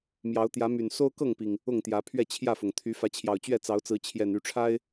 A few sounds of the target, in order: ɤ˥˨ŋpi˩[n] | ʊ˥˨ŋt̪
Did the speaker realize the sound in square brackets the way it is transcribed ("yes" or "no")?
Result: no